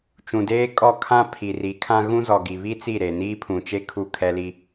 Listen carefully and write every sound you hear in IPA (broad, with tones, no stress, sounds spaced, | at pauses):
t͡ʃ ũ˨ d eː˦ kʼ ɔ˦˨ kʰ ã˦ pʰ i˨ r i˨˦ kʰ ã˦ ɣ ũ˦ z ɔ˨ ɡ i˨ β i˦ t͡s i˦˨ ɾ e˨ n iː˦ pʰ ũ˨ t͡ʃ e˦ kʰ u˦˨ kʰ ɛ˦ l i˦